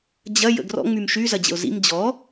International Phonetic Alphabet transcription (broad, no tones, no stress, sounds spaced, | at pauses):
d͡ʑ ɐ j ə̰ ɡ r ɔ̰ ŋ͡m y m ʃ y z ɐ d͡ʑ ə̰ ʊ̯ z ḭ m d͡ʑ ɔ